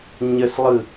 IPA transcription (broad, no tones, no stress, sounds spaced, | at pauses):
ɲ ə s lˠ ɯ